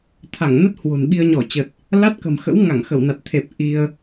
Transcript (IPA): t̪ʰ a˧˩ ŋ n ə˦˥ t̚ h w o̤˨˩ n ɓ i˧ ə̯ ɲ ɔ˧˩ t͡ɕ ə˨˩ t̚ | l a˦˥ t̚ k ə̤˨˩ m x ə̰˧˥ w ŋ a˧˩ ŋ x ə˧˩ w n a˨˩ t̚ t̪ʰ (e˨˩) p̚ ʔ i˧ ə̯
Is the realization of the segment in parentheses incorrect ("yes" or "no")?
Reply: no